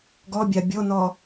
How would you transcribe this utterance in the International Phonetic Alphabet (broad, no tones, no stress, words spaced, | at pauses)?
ɡɔbʲa bʲonɔ